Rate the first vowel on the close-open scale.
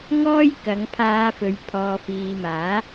mid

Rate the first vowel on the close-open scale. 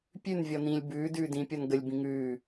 close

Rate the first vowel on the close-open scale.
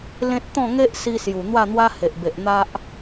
mid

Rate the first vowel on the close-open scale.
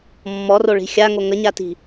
mid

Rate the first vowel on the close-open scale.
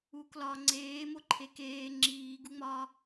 close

